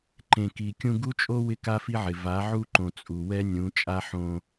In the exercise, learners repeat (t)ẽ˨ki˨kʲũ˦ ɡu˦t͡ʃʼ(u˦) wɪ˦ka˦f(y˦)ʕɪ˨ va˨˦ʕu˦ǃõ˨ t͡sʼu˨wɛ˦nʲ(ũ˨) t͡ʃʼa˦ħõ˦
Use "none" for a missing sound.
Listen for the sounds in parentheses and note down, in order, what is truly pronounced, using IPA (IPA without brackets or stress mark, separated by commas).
ǃ, o˦, i˦, ũ˨˦